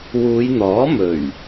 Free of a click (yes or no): yes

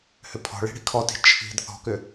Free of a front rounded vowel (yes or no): no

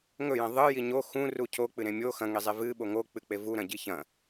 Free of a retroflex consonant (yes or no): yes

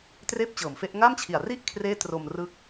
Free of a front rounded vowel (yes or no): yes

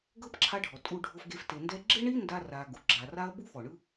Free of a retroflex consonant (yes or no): no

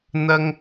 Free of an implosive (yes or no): yes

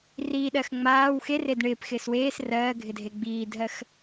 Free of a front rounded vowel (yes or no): yes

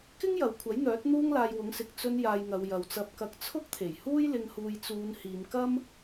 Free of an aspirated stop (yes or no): no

